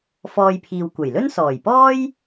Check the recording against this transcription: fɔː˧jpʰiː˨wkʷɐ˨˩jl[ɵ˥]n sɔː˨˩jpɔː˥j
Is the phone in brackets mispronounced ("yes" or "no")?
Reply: no